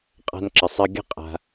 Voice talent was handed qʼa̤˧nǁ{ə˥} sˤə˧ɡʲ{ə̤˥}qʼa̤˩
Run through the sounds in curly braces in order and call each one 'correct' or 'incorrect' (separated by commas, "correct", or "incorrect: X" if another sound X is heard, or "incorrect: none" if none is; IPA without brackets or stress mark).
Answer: incorrect: ə˩, correct